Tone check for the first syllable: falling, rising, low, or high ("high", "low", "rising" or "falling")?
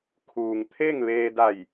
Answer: low